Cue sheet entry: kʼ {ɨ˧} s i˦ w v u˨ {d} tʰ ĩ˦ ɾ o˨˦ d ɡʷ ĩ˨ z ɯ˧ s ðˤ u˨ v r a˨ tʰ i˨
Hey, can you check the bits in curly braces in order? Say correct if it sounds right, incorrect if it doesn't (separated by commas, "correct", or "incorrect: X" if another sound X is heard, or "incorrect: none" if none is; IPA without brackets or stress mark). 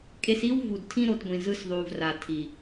incorrect: e˧, correct